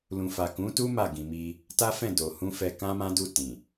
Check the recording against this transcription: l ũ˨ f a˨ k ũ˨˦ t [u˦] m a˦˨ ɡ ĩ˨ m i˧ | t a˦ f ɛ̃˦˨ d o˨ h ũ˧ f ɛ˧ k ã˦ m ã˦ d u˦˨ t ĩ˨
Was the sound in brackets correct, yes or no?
yes